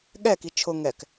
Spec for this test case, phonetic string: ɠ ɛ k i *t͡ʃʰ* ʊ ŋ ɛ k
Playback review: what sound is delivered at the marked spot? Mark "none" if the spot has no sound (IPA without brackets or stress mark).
t͡ʃʰ